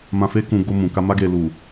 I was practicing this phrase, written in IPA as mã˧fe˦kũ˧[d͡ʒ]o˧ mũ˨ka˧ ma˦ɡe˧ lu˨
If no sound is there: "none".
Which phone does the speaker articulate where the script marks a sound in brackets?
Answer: ɡ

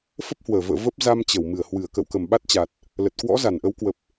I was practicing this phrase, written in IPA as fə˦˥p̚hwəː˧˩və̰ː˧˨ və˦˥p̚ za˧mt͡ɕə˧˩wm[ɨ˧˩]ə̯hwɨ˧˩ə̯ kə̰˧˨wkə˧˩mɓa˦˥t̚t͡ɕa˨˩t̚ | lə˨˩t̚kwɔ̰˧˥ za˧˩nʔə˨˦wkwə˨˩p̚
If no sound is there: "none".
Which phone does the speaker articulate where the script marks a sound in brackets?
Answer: ɨ˧˩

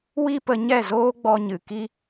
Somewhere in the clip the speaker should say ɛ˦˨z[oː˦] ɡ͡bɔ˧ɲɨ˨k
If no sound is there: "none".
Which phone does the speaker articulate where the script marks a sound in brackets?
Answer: oː˦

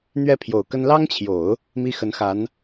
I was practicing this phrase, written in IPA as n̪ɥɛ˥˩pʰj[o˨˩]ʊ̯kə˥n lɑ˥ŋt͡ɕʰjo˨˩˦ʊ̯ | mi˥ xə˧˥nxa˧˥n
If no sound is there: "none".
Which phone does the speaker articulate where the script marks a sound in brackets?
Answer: o˨˩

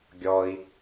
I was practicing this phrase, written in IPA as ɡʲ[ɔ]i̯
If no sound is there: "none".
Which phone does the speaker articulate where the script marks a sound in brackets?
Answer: ɔ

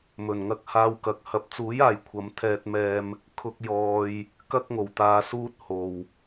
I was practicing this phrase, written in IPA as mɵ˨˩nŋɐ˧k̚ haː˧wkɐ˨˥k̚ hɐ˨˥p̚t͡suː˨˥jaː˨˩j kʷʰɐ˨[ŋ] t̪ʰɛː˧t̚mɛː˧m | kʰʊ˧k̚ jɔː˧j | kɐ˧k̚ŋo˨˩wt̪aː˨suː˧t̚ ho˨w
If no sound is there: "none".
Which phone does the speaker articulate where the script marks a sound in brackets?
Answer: m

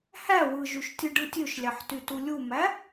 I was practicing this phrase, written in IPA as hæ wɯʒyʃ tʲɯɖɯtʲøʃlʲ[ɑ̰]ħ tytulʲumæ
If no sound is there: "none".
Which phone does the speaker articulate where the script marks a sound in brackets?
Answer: ɑ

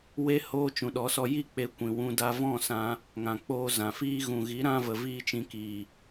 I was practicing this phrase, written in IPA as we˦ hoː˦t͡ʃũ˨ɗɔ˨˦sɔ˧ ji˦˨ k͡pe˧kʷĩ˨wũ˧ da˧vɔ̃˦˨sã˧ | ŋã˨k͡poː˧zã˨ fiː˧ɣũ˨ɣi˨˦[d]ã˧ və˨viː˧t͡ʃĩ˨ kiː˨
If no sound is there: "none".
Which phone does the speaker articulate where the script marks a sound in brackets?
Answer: ɾ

